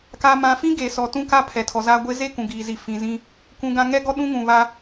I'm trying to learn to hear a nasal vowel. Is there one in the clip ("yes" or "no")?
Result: yes